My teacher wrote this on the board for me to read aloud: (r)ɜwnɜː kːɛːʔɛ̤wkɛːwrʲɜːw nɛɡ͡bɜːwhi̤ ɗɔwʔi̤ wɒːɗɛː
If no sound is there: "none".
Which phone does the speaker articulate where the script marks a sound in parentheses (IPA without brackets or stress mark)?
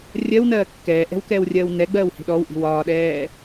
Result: rʲ